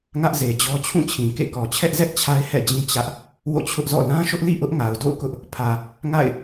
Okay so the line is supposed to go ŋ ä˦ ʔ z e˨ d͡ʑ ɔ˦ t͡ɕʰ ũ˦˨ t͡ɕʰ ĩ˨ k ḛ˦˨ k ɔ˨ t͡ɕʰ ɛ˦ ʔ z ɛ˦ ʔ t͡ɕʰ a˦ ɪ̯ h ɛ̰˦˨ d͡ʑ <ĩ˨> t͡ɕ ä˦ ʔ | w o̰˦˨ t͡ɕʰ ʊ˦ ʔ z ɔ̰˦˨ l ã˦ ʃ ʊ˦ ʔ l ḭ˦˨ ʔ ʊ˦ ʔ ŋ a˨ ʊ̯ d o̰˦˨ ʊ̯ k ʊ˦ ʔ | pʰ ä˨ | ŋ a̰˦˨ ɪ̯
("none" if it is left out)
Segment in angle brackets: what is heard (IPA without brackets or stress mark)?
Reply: ĩ˦